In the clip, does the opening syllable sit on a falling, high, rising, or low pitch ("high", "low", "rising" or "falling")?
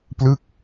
falling